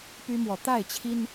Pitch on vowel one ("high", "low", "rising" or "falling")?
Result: high